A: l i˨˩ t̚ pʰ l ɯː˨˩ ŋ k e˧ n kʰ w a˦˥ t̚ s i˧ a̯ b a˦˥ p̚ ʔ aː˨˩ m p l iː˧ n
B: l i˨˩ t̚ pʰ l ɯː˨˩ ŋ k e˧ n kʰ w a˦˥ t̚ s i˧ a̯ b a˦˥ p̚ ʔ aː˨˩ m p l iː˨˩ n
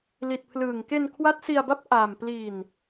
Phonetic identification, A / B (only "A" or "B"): A